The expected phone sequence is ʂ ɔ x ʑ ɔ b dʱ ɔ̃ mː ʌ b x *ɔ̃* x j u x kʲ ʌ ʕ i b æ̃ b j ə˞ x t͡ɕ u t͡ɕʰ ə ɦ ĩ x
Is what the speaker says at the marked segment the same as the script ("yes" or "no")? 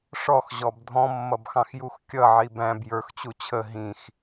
no